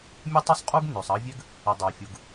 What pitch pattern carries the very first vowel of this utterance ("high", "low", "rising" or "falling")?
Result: high